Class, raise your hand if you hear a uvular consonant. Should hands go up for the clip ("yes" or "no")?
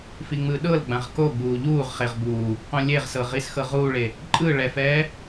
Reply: yes